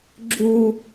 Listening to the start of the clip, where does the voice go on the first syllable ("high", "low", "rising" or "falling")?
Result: high